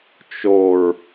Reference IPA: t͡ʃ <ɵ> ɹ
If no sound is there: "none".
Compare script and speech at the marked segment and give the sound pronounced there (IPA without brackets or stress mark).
o